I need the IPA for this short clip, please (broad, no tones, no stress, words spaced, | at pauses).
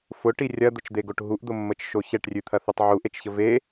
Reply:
fʊʈi rʲɐd̪ʊt͡ʃd̪eɡoʈ ɦuʔd̪ʊmːət͡ʃʃo çɛʈrʲʉt̪ʰɐθutˤ ʕuʔet͡ʃçə ve